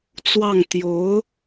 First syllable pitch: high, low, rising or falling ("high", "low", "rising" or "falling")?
falling